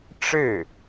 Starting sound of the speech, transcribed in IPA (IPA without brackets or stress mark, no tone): ʈ͡ʂ